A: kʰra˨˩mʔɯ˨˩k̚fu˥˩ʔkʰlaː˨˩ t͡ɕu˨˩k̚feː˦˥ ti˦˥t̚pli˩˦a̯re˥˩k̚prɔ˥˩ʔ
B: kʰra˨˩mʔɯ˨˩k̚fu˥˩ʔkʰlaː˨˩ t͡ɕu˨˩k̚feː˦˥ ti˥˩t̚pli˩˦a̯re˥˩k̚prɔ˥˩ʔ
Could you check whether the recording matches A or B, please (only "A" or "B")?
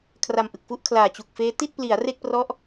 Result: B